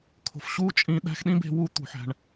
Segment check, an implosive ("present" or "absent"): present